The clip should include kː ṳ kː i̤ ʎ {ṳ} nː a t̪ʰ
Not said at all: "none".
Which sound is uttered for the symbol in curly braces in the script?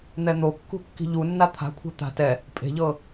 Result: u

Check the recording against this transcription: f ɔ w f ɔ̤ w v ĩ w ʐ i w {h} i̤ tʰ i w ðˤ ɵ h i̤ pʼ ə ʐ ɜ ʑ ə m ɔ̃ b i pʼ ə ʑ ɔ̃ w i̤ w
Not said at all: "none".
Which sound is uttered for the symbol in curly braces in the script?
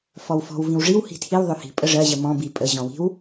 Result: h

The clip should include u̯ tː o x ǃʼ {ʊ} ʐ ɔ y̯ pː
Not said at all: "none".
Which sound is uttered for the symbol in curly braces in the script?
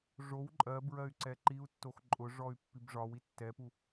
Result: ʊ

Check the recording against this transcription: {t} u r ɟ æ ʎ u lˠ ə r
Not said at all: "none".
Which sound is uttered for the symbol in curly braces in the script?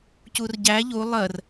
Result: c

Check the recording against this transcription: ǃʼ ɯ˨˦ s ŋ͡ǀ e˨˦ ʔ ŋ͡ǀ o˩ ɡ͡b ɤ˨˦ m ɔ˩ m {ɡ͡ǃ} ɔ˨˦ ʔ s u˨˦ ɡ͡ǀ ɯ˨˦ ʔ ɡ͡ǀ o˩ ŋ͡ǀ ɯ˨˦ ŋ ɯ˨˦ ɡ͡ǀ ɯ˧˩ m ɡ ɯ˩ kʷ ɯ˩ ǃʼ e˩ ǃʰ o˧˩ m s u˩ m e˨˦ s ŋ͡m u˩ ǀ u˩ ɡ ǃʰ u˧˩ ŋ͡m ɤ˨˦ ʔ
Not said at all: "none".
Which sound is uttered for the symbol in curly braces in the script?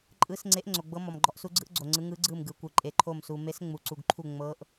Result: ɡ͡ǃ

